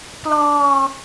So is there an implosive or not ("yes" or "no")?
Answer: no